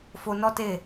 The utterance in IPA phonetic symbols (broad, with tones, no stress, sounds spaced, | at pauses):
f o˧ n ɔ˦ t e˦˨